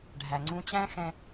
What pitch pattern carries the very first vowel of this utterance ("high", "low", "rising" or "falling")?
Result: low